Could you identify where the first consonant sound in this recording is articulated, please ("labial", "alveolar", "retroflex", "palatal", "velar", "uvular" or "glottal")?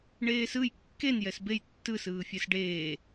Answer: retroflex